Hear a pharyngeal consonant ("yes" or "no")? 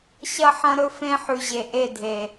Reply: yes